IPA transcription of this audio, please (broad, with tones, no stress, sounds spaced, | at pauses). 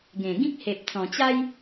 ɡ ẽ˨˩ ɡ ĩ˦ k̚ h e˨ p̚ t͡s ɔ̃˨˩ t͡ɕ a˦ j